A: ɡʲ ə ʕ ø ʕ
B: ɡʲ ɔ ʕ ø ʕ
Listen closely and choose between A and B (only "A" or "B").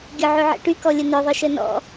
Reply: A